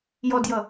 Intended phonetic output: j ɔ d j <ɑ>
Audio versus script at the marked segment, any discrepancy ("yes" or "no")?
yes